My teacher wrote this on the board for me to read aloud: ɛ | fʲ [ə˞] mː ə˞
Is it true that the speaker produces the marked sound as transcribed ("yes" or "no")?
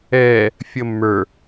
no